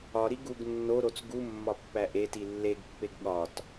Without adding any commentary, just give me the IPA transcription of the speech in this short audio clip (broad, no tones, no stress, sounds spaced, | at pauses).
ɒ ɾ i ɡ u ɡ nː o ɾ o t͡s ɡ u mː ɒ pː æ ʔ e t i lː e ɡ pː e ɡ ɠ ɒ t